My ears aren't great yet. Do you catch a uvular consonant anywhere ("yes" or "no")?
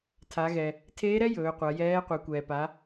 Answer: yes